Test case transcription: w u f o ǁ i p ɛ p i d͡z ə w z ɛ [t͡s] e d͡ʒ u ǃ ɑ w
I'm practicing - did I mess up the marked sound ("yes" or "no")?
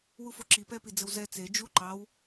no